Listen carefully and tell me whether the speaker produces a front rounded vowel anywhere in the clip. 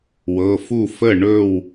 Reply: no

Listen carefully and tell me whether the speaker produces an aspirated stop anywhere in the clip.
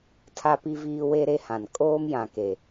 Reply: yes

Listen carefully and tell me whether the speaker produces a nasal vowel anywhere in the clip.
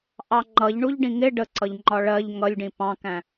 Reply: yes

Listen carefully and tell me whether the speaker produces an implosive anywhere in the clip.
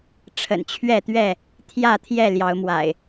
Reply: no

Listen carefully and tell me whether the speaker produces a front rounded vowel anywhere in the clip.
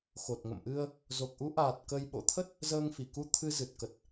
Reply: no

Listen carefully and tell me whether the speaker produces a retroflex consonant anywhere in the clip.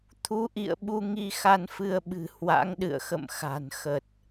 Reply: no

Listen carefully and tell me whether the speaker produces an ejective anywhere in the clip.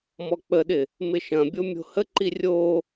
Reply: no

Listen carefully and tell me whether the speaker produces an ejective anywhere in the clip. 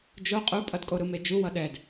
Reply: yes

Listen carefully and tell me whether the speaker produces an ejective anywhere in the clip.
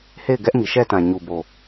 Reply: no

